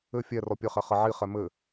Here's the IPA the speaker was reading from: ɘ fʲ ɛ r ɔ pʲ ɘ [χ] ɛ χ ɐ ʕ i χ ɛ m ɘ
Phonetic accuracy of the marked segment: correct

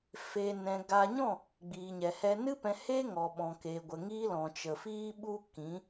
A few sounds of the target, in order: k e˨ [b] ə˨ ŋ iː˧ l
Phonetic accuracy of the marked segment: incorrect: ɡʷ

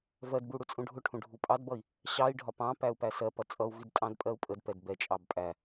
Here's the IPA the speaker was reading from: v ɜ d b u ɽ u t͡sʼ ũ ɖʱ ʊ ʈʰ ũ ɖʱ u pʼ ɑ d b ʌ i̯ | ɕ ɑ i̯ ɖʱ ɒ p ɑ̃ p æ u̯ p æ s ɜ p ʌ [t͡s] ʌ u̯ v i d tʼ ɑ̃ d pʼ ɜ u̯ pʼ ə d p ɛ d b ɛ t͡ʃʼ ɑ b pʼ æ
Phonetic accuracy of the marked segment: incorrect: t͡sʼ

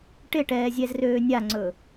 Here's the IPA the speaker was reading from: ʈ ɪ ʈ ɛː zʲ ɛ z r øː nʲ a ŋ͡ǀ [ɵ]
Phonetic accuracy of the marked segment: correct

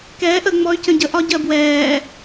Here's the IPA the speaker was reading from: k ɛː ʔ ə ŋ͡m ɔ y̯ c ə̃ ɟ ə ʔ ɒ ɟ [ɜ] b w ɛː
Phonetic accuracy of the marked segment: correct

